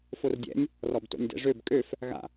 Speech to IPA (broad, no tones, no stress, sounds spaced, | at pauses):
f o r dʲ ɛ̰ nʲ | r ɔ b t o̰ nʲ d ɛ̰ ʐ ø b kʼ ø f | ɣ a̰